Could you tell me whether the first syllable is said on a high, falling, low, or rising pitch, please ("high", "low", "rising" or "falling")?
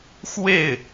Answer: falling